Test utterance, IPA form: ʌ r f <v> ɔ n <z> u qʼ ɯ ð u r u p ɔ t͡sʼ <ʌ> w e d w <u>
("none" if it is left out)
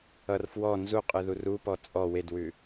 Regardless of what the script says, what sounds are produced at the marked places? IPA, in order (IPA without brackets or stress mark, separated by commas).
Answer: w, z, ɔ, ʉ